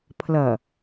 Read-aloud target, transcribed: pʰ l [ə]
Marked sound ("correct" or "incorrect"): incorrect